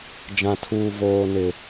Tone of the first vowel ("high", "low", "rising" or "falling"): low